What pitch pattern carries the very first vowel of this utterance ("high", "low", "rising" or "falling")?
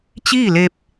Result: falling